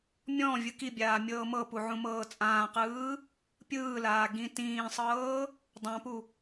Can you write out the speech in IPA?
mʲ ɔ̃ vʲ ɯ k i bʲ aː mʲ ɤː m ɤ p u ʕ ũ m ɤː t͡sʼ ãː q ɯː | pʲ ɯː l aː ɡ ĩ t ĩː sˤ ɤː | dˤ ã p u

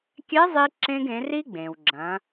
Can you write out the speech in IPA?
kʲ ɛ˧˥ zˤ i˧ ǁ ẽ˧ ɡ ẽ˩˧ r i˥ ɡ͡b ẽ˩ w ɡ͡ǁ ɐ̃˩˧

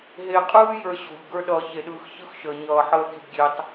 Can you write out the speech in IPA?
ɦ e˨ qʼ ɯː˦ j ə˞˧ ɕ o̤˨ ʎ ɡ ə˞˧ ɗ ʌː˨ ç e˨ ɗ ɯː˨ x ç ɯ˦ x ʃ əː˨ ɲ ʌː˨ ħ əː˧ kʲ ə̤˧ d ɡʲ e˧ tˤ

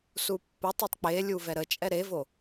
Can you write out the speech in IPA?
s u pː ʊ tˤ i tˤ k͡p e lʲ u v ɛ ɾ ə t͡ʃʼ ɛ ɾ e v o

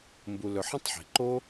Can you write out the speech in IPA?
m b u˧ l ɵ˧ ħ ə̃˦ tˤ ħ i̤˨ ǃ o˦

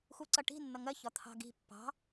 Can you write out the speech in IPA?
x u ǀ ʌ ʈ i̤ nː ʌ ŋ ɜ ç ɒ t̪ʰ ɑ̤ ɡ i̤ pː ɑ̤

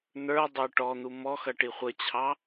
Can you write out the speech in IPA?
n̪ ə˞ dˤ ə˞ ʈ ɔ n̪ u m ɔ x ʌ ʈ i χʷ ə t͡ɕʰ ɑ

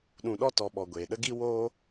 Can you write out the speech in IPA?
ɗ ũ˧ ɗ ɔ˦ t ɔ˨˦ ɓ ɔ˨ ɡʷ eː˨ ɗ ə˦ ɡ i˦ w oː˦

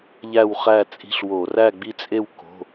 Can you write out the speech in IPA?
ʎ æ˥˨ w χ æ˥˨ t͡sʼ i̤˦ ɬ w o˧˩˧ r æ˥˨ ɡ͡b i˦ t͡sʼ e˥˨ w k o̤˩˧˩

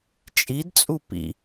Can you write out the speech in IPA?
t͡ʃʼ i d t͡sʼ u p ḭ

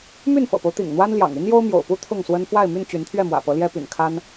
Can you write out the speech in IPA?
m y˥˨ n f ɤ̰˨˩ p o˦ ʊ̯ t̪ ḭ˨˩ ŋ n̪ w a˦ n l j ɑ̰˨˩ ŋ y˦ n j o˦ ʊ̯ m j o̰˨˩ ʊ̯ p u˦ t̪ʰ ʊ˥˨ ŋ s w ə˦ n f w a˥˨ ɪ̯ m y˥˨ n t͡ɕ y˨˦ n t̪ʰ ɥ ɛ˥˨ m w ä̰˨˩ p ɤ˨˦ l j ɛ˦ p y̰˨˩ n kʰ a˦ n

